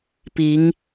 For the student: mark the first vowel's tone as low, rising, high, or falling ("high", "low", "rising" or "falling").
rising